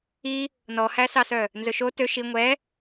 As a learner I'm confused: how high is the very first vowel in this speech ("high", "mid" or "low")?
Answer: high